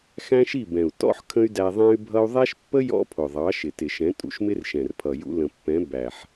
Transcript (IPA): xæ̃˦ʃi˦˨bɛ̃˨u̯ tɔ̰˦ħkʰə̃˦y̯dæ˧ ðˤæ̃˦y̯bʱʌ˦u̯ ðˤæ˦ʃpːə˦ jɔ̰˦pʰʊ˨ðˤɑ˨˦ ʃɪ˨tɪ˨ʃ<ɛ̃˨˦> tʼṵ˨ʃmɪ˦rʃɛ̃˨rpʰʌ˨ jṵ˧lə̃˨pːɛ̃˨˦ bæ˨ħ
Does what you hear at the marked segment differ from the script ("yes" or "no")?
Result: no